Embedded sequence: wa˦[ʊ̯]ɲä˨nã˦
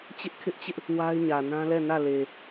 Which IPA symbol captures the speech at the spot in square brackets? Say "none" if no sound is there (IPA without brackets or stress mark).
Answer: ɪ̯